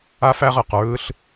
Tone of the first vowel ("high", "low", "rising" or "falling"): high